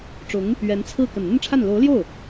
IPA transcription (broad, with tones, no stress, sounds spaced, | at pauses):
ʈ͡ʂ ʊ˧˥ ŋ | ɥ ɛ˧˥ n t͡sʰ ɹ̩˥˩ k ə˨˩ n n̪ ə˥˧ n ʈ͡ʂʰ a˥˩ n l o˧˥ ʊ̯ l j o˥˩ ʊ̯